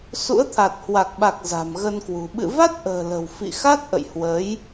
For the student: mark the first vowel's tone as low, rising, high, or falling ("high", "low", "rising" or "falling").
rising